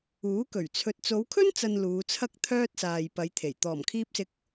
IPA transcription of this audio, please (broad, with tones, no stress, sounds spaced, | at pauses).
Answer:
uː˨˥ k ɵ˨˩ ɥ t͡sʰ ɵ˧ t̚ t͡s o˨˧ w kʰ ɵ˥ n t͡s ɐ˨ n l uː˨˧ t͡sʰ ɐ˥ k̚ t̪ʰ œː˥ t̚ s aː˨ j p ɐ˨˧ j t̪ʰ e˨˩ j t̪ ɔː˨˩ m kʰ iː˧ p̚ s ɪ˨˥ k̚